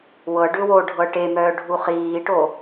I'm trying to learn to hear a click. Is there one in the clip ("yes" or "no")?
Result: no